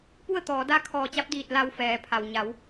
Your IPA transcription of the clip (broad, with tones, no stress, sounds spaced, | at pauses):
p u˥˨ ə̯ t̪ ɔː˩˧ d a˥˨ kʰ ɔː˧˩ t͡ɕ a˧˥ p̚ d iː˧˩ t̚ l a˧ w f ɛː˩˧ pʰ a˩ w ɲ a˩˧ w